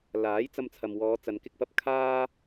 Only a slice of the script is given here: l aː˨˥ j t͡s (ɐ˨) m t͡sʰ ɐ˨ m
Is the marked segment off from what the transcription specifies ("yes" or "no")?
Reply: yes